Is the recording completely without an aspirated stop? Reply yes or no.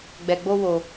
yes